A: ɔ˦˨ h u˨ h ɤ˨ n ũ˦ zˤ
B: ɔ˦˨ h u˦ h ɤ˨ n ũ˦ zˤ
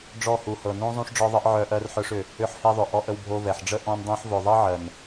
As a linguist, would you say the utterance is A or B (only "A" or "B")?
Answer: A